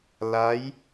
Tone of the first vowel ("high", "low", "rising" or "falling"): rising